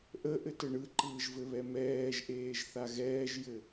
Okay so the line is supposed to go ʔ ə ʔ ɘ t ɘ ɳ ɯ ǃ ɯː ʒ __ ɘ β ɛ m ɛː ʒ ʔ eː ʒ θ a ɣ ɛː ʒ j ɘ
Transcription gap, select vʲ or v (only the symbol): v